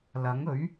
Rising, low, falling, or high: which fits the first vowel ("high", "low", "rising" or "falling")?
rising